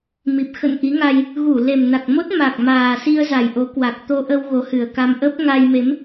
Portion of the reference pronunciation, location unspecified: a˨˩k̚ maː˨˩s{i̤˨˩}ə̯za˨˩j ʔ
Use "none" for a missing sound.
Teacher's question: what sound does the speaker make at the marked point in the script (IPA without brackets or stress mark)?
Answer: i˧